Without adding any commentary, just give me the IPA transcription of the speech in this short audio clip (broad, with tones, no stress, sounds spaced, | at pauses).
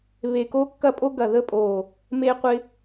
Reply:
β e˨˩ k o˧ kː ɐ˧ pʼ o˧ ɡ ɐ˨˩ ð ə˧ pʼ o˨˩ | m e˧ qʷ ɪ˧